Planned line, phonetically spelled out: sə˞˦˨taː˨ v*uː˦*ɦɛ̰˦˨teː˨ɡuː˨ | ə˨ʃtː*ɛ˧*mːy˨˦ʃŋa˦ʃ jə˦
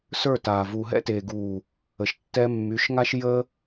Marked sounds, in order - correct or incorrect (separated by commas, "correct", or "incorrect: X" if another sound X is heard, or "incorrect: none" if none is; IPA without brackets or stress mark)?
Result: incorrect: uː˨, correct